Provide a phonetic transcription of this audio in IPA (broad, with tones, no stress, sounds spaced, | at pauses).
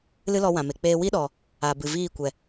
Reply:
l ɨ˦ l ɔ˧ w ã˨ m e˨ k͡p eː˦ w i˦ ɗ ɔ˨ | a˨ b ɨ˨ v iː˦˨ kʷ ɛ˨